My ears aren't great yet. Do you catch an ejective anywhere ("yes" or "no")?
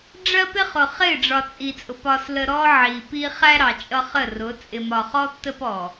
yes